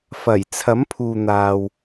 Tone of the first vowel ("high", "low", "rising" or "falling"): low